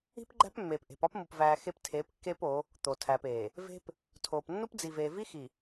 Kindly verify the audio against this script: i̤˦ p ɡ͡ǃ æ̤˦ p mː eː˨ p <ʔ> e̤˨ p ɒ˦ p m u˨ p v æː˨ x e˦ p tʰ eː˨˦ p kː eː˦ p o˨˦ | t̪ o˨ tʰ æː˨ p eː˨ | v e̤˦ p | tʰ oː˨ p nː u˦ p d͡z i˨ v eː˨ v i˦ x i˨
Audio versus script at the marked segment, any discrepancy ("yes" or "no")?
no